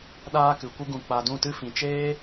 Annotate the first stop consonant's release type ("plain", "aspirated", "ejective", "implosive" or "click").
implosive